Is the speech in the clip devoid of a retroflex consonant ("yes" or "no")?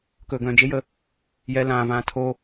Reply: yes